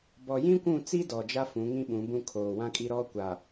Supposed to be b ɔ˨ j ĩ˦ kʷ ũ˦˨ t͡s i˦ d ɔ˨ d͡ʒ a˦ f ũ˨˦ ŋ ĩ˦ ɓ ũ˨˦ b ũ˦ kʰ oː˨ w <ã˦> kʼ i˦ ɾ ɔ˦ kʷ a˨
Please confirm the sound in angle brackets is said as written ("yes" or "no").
yes